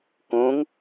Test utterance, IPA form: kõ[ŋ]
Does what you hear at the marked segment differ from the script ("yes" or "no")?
no